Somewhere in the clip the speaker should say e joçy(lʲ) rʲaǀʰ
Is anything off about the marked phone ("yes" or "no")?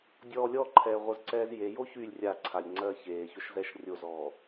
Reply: no